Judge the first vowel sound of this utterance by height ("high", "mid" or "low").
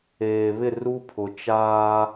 mid